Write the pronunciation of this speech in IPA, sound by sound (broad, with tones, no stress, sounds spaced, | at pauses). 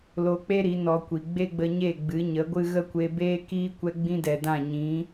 l o˧ k͡p e˦ ɾ i˨˦ n ɔ˧ kʷ i˨ ɡ͡b e˦ ɡ͡b ə˧ ɲ e˦˨ ɡ͡b ɨ˨˦ ɲ ə˨˦ ɡʷ ɨ˦ ɣ ə˦ kʷ e˧ b eː˦ k iː˦ kʷ ɛ˧ ɡ͡b ĩ˦ d ɛ˨ d ã˦˨ ɲ ĩ˨˦